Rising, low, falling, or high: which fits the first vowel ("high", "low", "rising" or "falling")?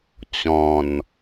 low